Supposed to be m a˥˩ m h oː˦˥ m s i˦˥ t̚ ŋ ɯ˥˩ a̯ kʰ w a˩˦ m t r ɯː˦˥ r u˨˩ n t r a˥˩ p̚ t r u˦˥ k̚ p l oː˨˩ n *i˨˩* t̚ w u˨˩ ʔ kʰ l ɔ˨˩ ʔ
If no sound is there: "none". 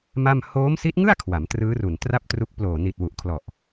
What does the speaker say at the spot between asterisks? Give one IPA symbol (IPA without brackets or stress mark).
i˨˩